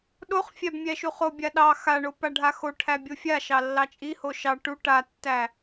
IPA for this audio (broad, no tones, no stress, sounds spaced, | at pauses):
ɗ o χ fʲ æ b mʲ æ ʃ u χ o bʲ a ɗ ɑ x a ɳ o p a ɖʱ a x o ʈʰ æ bʲ o fʲ a ʃ ɑ lː ɑ t͡ʃʼ i h o ʃ ɑ ʈ u ʈ a tː æ